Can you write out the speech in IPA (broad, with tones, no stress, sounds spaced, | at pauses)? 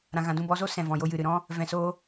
ɾ ã˧ ɣ ã˧ d ũ˧ b ɔ˨˦ z o˦ s ɛ̃˨ v ɔ̃˨ j o˧ j ɨ˨ ɾ ɨ˨ ɾ ɔ̃˦ | v ɛ̃˧ s oː˦